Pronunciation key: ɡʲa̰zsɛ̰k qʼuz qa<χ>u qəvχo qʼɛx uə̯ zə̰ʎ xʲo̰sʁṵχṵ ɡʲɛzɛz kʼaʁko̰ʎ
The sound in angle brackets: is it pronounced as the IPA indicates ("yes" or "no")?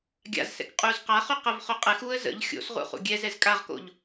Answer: yes